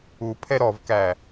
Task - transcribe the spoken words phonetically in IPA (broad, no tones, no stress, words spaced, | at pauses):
upʰɛ ɾɔvkæ